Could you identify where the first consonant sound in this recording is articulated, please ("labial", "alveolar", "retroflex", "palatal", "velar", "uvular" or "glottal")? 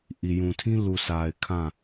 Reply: glottal